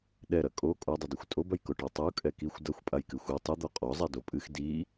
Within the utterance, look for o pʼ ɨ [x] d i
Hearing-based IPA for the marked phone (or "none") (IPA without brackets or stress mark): x